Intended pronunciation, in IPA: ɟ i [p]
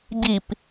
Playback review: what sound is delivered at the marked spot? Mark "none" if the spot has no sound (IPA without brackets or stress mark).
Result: p